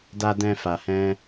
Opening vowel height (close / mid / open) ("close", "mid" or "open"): open